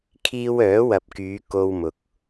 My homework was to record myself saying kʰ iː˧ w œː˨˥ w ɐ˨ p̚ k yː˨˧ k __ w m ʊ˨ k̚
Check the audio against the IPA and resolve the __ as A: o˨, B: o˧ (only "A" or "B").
B